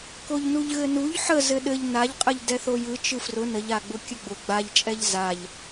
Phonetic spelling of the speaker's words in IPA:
k o ʎ n u ʎ ɣ ɘ n u ʎ ħ ə z ɘ ɗ ɘ ʎ n a ʎ qʼ ə ʎ d ɛ θ o j ɯ t͡ʃ ɯ f r ʊ n ə ʎ a ɡ͡b ʊ kʲ ə ɡ͡b ʊ ɡ͡b a ʎ t͡ʃʼ ɛ ʎ z a ʎ

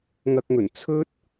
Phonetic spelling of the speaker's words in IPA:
ŋ ɐ˧ k̚ ŋ ɵ˨˩ n t͡sʰ ɵ˥ t̚

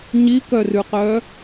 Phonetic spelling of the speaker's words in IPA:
ɲ i k œ r ʉ q œ

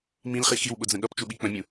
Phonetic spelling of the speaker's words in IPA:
m ĩ l χ i x i w ɓ ʊ d͡z ə̃ ɠ ʌ p t͡ʃ u ɓ i k͡p ə̃ mʲ ũ

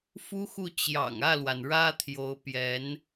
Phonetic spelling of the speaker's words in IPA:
f u˥ x u˥˩ t͡ɕ j ɑ̰˨˩ ŋ ä˥˩ l w a˩ n ɻ ä˥ t̪ʰ j o˧˥ ʊ̯ p j ɛ˧˥ n

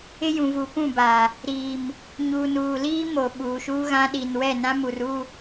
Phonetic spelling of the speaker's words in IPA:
ɪ˦ j ũ˨ v u˨ p ũ˦˨ b aː˨ | ɾ iː˨ m | ɲ uː˨ n uː˨ l iː˦ m o˨ ɓ uː˨ ʃ uː˦ ɣ ã˦ ɗ i˨ n w ɛ˦˨ n ã˦ m u˨ r u˦˨

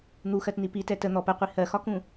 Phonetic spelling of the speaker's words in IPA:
n̪ u x ɜ t n i p i t ɛ t ə n̪ ɔ p ə qʷ i h ɜ x ɒ k ũ

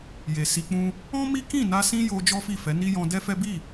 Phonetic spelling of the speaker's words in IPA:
j e˨ s i˧ k͡p ũ˦ | ɔ̃˦ m i˦ k ĩ˦˨ n a˧ s ĩ˦ j o˧ d͡ʒ ɔ˦ f i˦˨ f ɛ˨˦ n i˦ j ɔ̃˧ d ɛ˦ f ɛ˦ b i˦˨

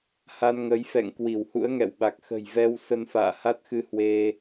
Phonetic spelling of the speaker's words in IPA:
h a˧ n ŋ ə˨˦ j f ɛ̰˧˨ ŋ k w i˧˩ w h ṵ˧˥ ə̯ ŋ ɛ̰˧˨ w ɓ a˨˩ k̚ x ə̤˨˩ j v ɛ˧ w s ə˧ n f a̰ː˧˨ h a˦˥ t̚ x ɨ˧ h w e˧

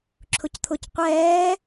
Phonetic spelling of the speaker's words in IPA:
ǁʰ ʊ c t̪ʰ ʊ c qʷ ɛː

